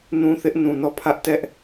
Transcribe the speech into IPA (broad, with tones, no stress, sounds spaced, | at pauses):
n ũ˦ θ ɪ˦ ʔ n ũ˨ n ɔ˦˨ pʰ ä˦ ʔ t ɛ˦ ʔ